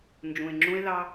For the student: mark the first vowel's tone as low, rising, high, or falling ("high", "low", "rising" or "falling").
low